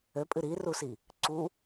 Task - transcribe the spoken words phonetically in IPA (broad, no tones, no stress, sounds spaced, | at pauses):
ø pʼ ɨ ɾ i r u s i | ǀ u